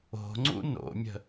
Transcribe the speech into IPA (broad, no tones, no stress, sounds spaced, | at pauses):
o̤ ŋ͡ǀ ṵ n o̰ mʲ ə̤